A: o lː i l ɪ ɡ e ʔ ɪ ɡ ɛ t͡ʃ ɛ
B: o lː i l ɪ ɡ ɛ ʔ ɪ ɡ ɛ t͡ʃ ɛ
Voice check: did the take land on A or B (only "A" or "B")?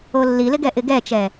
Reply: B